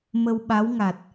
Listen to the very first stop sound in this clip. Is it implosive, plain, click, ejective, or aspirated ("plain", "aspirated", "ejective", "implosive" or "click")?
implosive